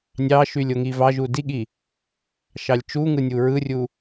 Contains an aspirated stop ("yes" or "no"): no